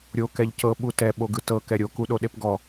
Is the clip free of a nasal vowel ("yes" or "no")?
yes